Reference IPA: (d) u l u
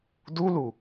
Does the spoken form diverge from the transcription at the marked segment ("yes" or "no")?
no